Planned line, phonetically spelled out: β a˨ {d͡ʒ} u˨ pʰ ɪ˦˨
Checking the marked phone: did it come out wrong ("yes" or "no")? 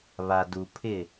yes